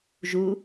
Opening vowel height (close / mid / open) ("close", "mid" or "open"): close